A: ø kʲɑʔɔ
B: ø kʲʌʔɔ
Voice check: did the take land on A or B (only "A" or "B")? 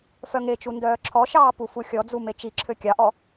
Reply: A